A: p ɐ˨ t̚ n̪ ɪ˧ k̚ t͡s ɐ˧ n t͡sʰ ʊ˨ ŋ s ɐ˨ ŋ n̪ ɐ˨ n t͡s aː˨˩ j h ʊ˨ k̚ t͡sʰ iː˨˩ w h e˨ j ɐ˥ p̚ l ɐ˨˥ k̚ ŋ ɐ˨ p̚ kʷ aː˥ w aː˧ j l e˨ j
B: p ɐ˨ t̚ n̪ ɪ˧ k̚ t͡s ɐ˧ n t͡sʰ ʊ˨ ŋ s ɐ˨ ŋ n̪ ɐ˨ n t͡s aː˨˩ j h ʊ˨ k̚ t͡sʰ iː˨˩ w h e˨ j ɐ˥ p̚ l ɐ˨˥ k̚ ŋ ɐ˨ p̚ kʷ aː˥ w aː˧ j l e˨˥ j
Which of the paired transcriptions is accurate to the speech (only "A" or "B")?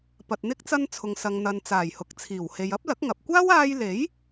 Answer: B